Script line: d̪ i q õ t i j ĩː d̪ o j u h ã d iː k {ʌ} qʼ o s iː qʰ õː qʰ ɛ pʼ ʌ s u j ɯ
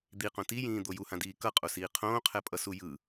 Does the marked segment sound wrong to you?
no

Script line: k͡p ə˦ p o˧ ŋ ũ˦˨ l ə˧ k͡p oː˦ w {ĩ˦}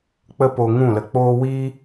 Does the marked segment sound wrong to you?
yes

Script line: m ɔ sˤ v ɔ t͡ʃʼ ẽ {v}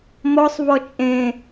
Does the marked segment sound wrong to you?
yes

